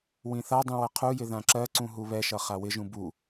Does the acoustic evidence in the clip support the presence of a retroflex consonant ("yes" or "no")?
no